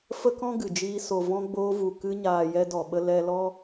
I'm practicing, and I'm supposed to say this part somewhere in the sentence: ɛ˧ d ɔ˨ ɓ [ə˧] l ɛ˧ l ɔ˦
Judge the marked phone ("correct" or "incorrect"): correct